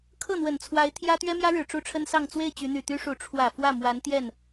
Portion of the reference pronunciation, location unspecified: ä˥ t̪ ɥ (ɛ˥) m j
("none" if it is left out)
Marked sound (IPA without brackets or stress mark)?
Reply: ɛ˥